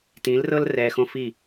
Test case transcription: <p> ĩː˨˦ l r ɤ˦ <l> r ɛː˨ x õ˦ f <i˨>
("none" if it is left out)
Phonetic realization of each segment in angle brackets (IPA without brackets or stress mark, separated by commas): t, l, i˦˨